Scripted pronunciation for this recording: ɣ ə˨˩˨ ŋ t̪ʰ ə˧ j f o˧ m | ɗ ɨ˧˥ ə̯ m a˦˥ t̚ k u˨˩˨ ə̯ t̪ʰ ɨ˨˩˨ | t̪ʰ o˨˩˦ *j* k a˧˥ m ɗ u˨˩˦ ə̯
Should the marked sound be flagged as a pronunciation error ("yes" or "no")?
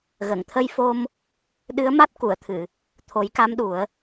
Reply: no